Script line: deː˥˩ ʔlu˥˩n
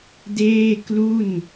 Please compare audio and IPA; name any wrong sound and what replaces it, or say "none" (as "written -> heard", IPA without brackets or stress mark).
ʔ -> k